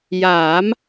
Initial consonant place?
palatal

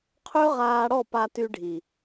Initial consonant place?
uvular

